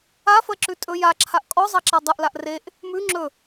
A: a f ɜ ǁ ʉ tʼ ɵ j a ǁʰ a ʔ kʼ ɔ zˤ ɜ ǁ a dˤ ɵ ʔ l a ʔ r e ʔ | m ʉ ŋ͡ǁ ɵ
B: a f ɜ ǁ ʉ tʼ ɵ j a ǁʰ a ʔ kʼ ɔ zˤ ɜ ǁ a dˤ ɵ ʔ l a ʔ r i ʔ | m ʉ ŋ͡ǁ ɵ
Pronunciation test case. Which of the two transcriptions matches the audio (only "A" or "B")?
A